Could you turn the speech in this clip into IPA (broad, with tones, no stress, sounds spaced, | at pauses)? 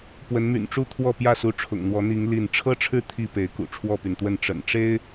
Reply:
p w ə˨˦ n m y̰˨˩ n ʈ͡ʂ u˥˨ t̪ʰ w ɔ˥˨ p j ä˥˨ s u˨˦ ʈ͡ʂʰ ʊ̰˨˩ ŋ n̪ w ɔ˨˦ n̪ i˨˦ ŋ l i˥˨ n ʈ͡ʂʰ ɤ˦ ʈ͡ʂʰ ɻ̩˦ t̪ʰ i˥˨ p e˨˦ ɪ̯ k ṵ˨˩ ʈ͡ʂʰ w ɔ˥˨ p y˩ n t̪ w ə˥˨ n ʈ͡ʂ ə̰˨˩ n ʈ͡ʂ e˦ ɪ̯